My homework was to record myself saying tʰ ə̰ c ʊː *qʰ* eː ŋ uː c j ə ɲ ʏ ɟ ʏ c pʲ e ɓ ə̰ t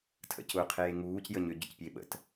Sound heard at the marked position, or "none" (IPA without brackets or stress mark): qʰ